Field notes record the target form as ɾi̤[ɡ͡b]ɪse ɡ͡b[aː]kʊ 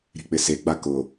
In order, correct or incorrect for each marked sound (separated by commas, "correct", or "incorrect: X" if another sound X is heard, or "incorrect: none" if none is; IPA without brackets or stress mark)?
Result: incorrect: k͡p, incorrect: a